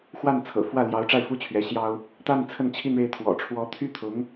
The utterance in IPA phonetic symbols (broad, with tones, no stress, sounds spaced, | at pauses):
x w a˥˩ n t͡sʰ ɤ̰˨˩ f w ä˥˩ l j ɑ˧˥ ʊ̯ ʈ͡ʂ a˥˩ ɪ̯ f u˥ t͡ɕʰ ɥ ɛ˧˥ ɕ j ɑ˥ ʊ̯ | t̪ a˥˧ n t͡sʰ ə˥˧ n t͡ɕʰ i˥˧ n ɻ e˥˩ ɪ̯ t̪ʰ w ɔ̰˨˩ ʈ͡ʂʰ w ɔ˧˥ t̪ʰ y˥ t̪ʰ ʊ˧˥ ŋ